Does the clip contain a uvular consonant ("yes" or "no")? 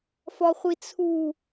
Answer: yes